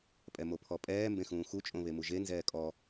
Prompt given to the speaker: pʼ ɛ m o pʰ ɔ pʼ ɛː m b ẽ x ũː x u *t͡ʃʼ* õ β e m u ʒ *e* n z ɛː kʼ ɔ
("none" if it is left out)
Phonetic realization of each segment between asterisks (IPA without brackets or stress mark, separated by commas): t͡ʃʼ, e